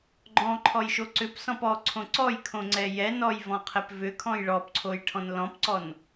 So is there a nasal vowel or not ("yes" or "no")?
yes